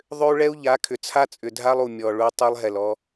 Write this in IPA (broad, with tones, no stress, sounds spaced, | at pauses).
ðˤ ʏ˦ u̯ ɭ ɛ˦ u̯ ʎ a˨˦ kʰ ʏ˨ t͡sʰ a˦ t͡sʼ ʏ˨ dʱ a˦ lˠ u˨ mʲ ɔ˨ ɭ u˦ tˤ i˦ lˠ ɦ ɛ˨ l ɔ˦